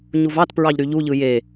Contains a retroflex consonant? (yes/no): no